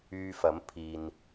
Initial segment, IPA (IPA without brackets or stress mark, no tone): yː